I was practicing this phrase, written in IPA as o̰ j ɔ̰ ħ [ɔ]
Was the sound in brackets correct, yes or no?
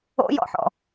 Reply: no